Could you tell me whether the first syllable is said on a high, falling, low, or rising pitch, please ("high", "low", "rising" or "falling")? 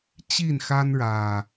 falling